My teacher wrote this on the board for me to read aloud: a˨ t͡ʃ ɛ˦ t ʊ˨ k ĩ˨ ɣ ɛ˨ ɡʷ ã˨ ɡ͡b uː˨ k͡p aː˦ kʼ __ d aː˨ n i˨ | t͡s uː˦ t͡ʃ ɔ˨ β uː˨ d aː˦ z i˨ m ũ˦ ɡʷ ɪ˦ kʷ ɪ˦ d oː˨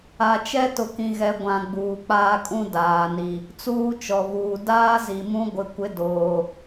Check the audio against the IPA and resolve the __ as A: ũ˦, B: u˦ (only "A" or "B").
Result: A